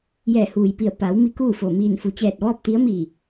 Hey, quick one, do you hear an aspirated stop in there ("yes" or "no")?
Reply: no